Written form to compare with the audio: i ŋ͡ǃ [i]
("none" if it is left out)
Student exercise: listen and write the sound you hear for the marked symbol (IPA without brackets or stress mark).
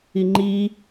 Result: i